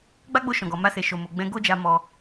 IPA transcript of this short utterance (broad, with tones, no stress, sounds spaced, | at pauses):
ɡ͡b a˦ ɡ͡b o˧ ʃ ɔ̃˨ ɡ ɔ˨ m a˧ s e˨ ʃ o˨ m o˨ ɡ͡b ɛ̃˧ ɡ o˦ d͡ʒ a˧ m ɔ˧